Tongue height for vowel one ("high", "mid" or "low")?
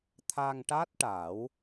low